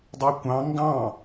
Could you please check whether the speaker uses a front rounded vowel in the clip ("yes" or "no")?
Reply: yes